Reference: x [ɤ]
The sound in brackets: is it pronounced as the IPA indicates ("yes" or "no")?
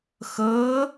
yes